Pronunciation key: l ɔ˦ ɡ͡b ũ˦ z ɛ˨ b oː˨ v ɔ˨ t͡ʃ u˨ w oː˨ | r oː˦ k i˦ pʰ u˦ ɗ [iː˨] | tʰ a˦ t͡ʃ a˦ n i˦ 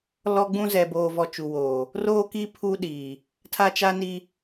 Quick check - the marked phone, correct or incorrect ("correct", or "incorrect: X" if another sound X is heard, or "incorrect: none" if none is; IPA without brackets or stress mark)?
correct